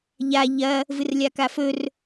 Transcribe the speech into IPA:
ʎ a ʎ ɐ | v ɨ r lʲ a k a f ɵ r

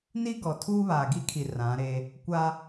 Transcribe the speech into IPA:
n i˦ ɡ ɔ˨ tʰ uː˦ β aː˨ ɡ i˦ kʰ i˨ r ã˨˦ ɾ e˦ | kʷ a˦

